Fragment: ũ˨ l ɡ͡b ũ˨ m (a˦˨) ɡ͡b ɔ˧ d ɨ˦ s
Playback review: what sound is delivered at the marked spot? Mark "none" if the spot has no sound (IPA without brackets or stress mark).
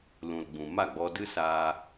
a˦˨